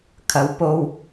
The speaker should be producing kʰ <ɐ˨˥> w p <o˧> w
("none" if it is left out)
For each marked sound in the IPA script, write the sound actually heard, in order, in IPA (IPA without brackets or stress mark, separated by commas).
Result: ɐ˨˧, o˧